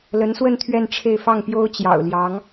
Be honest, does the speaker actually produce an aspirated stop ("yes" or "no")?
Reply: yes